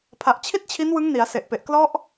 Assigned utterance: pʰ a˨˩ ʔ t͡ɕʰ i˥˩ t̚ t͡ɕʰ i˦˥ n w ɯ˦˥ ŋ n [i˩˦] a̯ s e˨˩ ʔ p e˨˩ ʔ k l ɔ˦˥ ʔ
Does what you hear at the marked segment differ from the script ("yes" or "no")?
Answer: no